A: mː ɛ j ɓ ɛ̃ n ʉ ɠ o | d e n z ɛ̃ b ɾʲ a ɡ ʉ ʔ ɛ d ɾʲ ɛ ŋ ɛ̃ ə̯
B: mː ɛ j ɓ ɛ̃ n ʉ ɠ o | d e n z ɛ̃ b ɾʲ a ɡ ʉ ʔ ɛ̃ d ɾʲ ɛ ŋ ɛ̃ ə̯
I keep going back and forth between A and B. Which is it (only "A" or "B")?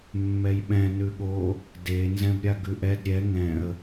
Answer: A